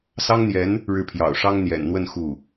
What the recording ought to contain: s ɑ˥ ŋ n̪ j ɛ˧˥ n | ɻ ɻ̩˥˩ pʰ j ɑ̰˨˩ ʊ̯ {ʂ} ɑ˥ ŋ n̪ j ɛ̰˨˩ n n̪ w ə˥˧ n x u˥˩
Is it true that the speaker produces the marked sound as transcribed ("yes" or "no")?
yes